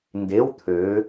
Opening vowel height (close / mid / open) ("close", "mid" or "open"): mid